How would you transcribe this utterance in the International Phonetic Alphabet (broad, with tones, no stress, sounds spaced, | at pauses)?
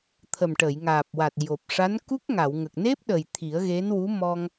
t̪ʰ ə˨˩ m ʈ ə˨˩˨ j ŋ aː˨˩ p̚ w a˨˩ t̚ j o˨˩ p̚ ʂ a˧˥ n k u˦˥ k̚ ŋ a˨˩˨ w ŋ ə˨˩ k̚ n e˦˥ p̚ ɗ ə˨˩ j t̪ʰ i˨˩˦ ə̯ ɣ e˧˥ n w u˧˥ m ɔ˧ ŋ